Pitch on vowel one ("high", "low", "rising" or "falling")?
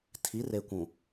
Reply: rising